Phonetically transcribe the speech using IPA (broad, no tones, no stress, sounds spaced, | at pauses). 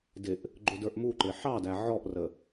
d ɪ ʔ | ɡ͡ǃ ʊ d ə˞ ʔ m u ǃ ɪ ħ ɑ d æ ʕ ɔ ʔ r ə